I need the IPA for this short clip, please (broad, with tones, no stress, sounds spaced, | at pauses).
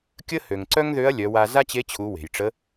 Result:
kʲ ə˥ h ø˩ ŋ ǀ œ˥ ŋ ð ø˧˥ ɐ̯ lʲ œ˩˧ w a˧ z a˥ t͡ɕ e˧˥ t͡ɕʰ u˩˧ w e̤˩ j ʈ͡ʂ ə˧˥